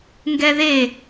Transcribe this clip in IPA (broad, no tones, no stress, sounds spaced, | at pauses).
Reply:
ŋ ɡ ɛ ð e